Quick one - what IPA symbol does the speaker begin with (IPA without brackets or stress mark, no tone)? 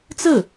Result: t͡s